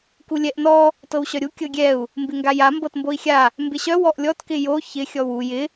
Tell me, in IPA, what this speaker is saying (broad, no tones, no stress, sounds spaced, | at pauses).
k u lʲ ɛ ʔ n ɔ | t ɤ w ɕ œ ɾʲ u kʲ ɤ ɡʲ ɛ u̯ | m b ɪ ŋ ɡ a j a m b ɤ t m b o i̯ xʲ a | m b ɪ ɕ œ w ɔ ʔ lʲ ɔ t k ɪ j o ç ɪ xʲ ɔ w u j ɪ